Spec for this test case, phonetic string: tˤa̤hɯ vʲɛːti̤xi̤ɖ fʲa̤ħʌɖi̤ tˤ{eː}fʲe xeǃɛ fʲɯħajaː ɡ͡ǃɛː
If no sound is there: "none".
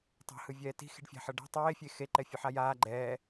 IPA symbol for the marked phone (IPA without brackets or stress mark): eː